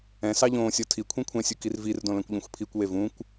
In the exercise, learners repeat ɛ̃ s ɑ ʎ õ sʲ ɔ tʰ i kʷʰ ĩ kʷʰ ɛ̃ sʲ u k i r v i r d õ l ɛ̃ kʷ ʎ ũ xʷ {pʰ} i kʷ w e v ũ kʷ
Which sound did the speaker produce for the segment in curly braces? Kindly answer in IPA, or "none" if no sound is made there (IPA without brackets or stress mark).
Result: pʰ